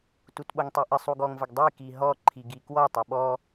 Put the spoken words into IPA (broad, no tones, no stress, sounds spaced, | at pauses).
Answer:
t u t ɓ o ŋ tˤ i ʔ ɘ sˤ u ɡ ɔ ŋ v ə ɡ dˤ i k i ɦ ɔ ǃʰ i ɡ i k w ɔ tˤ o ɓ ɔ